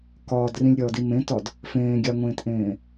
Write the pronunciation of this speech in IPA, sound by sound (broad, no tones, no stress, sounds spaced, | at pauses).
k ɒː d r ĩ lʲ ɾʲ ɒː d i m ẽ t ɒ d | f ẽː ɡʲ a ŋʷ ẽː t ʔ ẽː